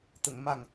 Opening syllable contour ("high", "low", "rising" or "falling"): low